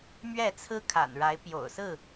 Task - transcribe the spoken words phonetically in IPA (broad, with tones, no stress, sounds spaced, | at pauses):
m ɥ ɛ˥˨ t͡sʰ ɹ̩˦ kʰ a̰˨˩ n ɻ a˨˦ ɪ̯ p j o̰˨˩ ʊ̯ s ɹ̩˥˨